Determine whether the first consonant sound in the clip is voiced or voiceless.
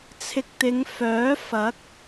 voiceless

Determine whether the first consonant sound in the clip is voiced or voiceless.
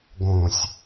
voiced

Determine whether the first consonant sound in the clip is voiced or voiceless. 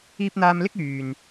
voiceless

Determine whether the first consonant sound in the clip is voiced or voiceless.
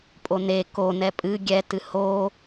voiceless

